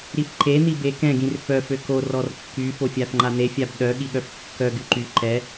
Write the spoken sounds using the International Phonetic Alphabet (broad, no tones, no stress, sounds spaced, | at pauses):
ɾ i f ǃ e n̪ i b e k ɛ̃ ɡ ĩ r f œ f ø k o r ɔ r kː y f o fʲ a f ŋ͡ǃ a n̪ e fʲ a b ɗ œ ɠ i ɠ œ f kː œ ɡ y ǃ y ǃ ɛ